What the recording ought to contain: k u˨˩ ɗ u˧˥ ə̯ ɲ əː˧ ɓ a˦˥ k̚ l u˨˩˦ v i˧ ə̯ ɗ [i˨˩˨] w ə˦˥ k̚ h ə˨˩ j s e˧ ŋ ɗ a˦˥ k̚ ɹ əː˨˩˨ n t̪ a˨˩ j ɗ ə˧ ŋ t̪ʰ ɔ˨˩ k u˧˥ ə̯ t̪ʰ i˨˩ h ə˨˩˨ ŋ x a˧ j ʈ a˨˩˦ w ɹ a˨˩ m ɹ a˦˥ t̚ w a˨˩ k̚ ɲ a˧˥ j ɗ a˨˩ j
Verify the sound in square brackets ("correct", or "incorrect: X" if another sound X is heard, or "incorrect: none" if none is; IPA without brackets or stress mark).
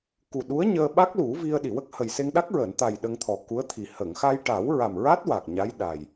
correct